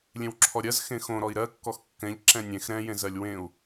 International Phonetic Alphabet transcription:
lʲ ẽ w ǁʰ ɔ ɾʲ ɜ z x ẽ x õ ɾ ɔ i̯ ɾ ɜ kː ɔ x kː ɛ̃ ʎ ǁ ɛ̃ nʲ ẽ x ɾ ɛ̃ j ẽ z ɜ lʲ w ẽ u̯

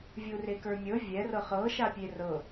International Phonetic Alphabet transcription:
vʲ u r e k ə˞ mʲ ɤ vʲ ɛ r ɤ χ ɤ ʃ a pʲ e r ɤ

